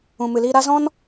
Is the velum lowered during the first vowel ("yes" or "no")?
yes